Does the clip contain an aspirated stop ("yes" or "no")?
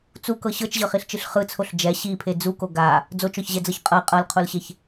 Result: yes